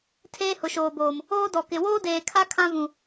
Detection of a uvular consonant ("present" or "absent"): absent